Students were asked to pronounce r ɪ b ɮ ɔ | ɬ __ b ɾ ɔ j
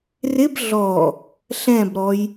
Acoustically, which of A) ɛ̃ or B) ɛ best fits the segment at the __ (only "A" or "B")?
A